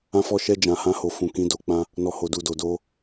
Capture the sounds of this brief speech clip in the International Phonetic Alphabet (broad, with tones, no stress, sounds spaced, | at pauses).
ã˧ f ɔ˧ ʃ ɛ˧ d͡ʒ ã˨ h ã˧ h o˨ f ũ˨ k ĩ˨˦ d o˧ k͡p ã˦ | n ɔ˨ h o˨ d u˨ d o˨ d o˧